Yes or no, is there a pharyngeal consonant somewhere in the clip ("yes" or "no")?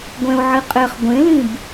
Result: yes